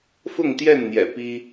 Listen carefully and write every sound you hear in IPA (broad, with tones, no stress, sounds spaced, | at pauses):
f ʊ˥˨ ŋ t̪ j ɛ˥˨ n n̪ j ɛ̰˨˩ p i˦